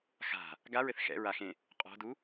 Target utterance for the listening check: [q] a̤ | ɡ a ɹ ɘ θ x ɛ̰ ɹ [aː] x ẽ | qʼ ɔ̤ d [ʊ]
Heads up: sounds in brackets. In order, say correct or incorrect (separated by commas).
incorrect, incorrect, incorrect